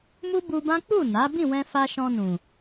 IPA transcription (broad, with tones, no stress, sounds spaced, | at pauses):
m u˦ b u˧ b ã˦ k͡p u˦˨ n a˨˦ b ĩ˦˨ w ɛ̃˧ f a˧ ʃ ɔ̃˧ n ũ˨